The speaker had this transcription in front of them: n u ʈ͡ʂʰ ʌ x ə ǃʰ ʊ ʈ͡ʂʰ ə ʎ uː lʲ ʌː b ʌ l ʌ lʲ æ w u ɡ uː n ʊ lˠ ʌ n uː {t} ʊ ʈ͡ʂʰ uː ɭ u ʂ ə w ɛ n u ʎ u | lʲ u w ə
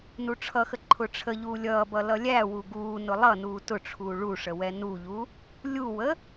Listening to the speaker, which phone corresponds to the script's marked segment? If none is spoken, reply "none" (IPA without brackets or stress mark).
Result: t